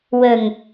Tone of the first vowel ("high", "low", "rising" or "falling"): low